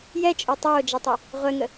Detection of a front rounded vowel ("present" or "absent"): present